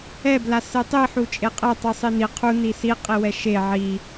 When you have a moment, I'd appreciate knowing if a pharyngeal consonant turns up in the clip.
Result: yes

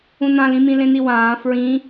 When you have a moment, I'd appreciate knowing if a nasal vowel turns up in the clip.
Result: yes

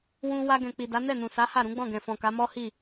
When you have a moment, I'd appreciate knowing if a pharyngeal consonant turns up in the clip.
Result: no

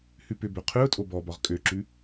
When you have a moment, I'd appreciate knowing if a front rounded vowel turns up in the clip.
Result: yes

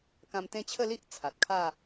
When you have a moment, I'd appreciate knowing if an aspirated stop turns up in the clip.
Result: yes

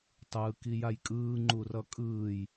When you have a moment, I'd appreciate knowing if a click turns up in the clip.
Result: yes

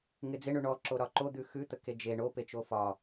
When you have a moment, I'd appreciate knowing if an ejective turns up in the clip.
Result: no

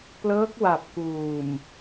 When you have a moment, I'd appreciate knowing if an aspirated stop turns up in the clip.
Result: no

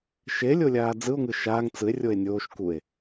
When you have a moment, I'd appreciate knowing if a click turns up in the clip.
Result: no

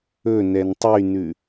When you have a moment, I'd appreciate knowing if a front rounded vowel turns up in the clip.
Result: yes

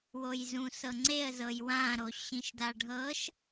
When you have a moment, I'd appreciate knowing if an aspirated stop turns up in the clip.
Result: no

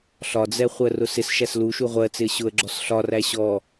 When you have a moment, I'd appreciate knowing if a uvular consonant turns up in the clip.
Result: yes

